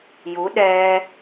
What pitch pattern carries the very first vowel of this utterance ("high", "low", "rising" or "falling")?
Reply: rising